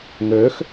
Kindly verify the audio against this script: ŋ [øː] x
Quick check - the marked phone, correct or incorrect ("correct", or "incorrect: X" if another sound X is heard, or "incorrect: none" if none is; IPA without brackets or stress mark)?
correct